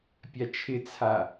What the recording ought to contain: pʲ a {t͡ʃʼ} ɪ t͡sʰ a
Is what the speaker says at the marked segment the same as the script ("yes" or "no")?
no